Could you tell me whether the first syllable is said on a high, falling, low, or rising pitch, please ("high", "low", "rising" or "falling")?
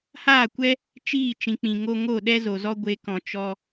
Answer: falling